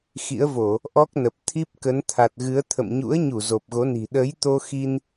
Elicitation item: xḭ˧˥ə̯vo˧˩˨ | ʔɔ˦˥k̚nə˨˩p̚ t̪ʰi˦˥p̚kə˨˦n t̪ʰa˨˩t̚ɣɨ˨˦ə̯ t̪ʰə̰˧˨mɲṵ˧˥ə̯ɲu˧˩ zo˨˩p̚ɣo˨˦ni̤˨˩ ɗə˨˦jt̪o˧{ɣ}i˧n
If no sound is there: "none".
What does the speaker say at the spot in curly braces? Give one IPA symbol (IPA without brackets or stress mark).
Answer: x